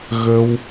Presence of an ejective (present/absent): absent